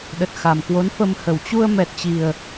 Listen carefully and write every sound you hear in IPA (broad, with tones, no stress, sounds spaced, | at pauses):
ɗ ə˨˩ t̚ x a˨˩ m k w o˨˦ n f ə˧ m h ə˨˩ w t͡ɕ u˧ ə̯ m ɛ˨˩ t̚ t͡ɕ i˨˩ ə̯